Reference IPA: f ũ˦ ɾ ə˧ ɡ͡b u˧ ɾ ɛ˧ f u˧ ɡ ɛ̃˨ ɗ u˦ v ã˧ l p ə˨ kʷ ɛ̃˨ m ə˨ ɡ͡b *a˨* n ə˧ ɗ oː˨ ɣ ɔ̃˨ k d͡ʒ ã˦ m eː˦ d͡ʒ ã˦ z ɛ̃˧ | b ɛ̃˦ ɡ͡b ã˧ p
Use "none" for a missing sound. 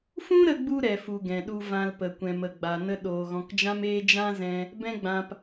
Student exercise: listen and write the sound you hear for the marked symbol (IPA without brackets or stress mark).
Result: a˨